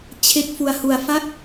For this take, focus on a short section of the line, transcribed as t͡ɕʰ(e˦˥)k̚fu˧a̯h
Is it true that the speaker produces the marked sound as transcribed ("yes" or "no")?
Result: yes